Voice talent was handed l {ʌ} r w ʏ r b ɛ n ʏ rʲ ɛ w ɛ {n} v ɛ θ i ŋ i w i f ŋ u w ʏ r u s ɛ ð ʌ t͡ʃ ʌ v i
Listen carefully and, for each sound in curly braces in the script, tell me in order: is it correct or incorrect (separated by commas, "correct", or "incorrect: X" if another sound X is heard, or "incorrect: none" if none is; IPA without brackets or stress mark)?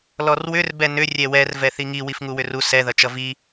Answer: incorrect: ɔ, incorrect: r